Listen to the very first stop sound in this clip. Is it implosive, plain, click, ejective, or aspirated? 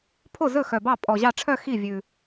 aspirated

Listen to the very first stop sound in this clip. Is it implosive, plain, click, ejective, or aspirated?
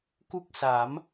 plain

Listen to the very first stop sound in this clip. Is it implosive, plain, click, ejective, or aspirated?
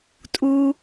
ejective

